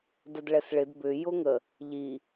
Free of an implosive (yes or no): yes